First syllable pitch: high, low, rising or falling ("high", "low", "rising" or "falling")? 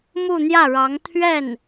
falling